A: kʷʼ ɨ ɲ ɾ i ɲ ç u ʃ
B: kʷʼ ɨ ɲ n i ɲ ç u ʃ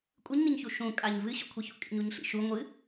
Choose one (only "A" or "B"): B